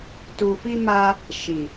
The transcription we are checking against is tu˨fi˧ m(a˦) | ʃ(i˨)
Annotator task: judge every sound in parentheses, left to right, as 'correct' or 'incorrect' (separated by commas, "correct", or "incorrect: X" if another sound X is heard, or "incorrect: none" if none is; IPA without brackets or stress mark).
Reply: correct, correct